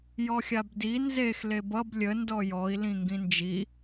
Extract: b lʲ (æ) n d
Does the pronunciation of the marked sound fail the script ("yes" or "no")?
yes